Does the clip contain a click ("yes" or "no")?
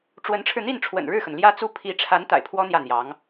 no